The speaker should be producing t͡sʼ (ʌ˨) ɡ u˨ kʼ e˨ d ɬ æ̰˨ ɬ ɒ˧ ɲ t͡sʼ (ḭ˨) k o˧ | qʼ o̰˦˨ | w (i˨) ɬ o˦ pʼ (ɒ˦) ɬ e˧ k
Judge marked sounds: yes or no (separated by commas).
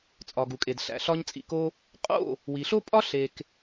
no, yes, yes, yes